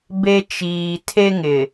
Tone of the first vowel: high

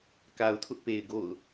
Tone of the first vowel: low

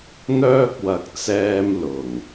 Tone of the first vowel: high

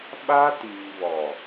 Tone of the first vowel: high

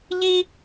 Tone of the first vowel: high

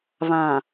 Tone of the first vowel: low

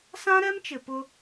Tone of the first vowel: high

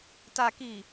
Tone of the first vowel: low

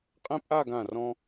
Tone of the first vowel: high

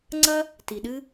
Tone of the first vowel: high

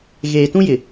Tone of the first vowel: low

